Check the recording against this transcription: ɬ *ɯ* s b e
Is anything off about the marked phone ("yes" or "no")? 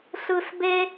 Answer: no